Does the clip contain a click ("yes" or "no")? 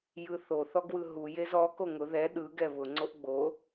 yes